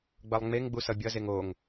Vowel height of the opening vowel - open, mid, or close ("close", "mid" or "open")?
mid